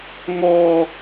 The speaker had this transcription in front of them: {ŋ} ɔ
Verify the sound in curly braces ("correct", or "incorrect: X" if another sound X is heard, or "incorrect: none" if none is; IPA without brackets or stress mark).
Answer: correct